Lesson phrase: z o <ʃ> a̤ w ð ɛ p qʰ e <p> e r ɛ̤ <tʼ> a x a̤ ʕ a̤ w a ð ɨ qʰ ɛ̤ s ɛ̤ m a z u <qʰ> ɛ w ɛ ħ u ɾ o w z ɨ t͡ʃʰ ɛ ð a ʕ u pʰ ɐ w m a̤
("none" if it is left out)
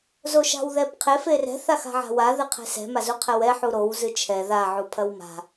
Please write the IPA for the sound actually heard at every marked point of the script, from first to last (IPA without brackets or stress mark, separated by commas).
ʃ, f, θ, qʰ